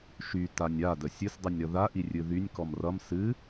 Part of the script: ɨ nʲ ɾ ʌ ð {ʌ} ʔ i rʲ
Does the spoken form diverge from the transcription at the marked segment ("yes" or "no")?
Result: yes